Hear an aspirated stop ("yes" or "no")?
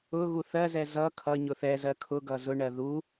yes